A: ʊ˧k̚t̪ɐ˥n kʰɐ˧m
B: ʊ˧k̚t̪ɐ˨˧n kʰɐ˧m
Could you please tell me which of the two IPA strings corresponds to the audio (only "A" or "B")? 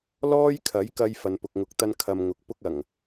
A